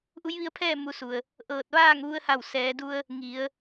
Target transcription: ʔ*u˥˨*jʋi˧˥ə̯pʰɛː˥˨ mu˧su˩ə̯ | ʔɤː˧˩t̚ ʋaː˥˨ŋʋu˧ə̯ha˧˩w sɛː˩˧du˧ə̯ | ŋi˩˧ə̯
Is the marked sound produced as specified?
no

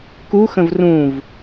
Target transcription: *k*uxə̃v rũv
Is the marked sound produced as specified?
yes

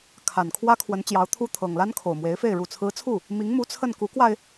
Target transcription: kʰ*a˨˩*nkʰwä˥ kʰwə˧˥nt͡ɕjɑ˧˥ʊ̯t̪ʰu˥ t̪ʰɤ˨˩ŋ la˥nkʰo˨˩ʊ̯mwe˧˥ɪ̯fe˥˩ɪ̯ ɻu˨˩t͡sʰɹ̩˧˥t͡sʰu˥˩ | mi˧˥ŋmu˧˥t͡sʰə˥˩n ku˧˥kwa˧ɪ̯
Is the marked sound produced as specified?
yes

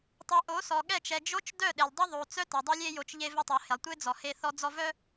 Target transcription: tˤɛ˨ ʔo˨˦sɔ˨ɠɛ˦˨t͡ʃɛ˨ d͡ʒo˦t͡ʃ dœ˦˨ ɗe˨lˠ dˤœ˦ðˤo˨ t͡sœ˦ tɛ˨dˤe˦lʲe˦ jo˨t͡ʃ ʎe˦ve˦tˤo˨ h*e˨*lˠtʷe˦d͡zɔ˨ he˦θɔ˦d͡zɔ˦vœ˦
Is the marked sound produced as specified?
yes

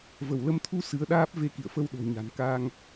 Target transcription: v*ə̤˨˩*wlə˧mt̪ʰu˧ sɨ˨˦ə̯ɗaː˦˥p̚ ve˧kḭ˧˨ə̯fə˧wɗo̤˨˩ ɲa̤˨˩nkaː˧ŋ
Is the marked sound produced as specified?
no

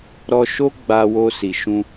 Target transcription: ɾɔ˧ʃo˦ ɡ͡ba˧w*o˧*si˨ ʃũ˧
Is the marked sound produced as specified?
yes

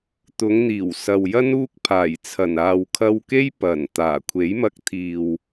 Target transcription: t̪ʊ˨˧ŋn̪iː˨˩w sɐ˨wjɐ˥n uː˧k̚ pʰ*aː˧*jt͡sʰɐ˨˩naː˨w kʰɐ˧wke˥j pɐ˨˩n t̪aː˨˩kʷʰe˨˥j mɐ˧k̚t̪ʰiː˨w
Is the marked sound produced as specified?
no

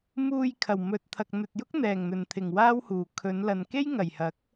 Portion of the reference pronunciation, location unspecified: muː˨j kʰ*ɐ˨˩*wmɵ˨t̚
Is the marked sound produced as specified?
yes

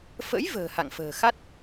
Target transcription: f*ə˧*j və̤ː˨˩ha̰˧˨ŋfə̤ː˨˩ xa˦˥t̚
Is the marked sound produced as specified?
no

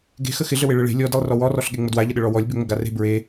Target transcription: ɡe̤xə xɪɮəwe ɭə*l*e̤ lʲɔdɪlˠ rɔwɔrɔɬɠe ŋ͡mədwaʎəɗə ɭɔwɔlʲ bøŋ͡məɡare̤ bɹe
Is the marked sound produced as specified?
no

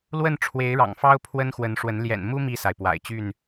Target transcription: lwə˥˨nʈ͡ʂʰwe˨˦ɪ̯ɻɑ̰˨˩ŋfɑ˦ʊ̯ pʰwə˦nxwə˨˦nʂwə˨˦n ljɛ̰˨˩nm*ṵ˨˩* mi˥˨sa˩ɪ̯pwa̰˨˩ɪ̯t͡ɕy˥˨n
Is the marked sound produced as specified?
no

